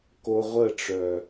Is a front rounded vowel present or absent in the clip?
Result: present